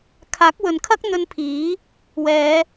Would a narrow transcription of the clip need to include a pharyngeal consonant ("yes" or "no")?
no